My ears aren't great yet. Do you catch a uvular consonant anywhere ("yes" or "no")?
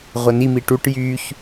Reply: yes